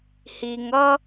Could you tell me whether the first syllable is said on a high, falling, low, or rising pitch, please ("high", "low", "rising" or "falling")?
low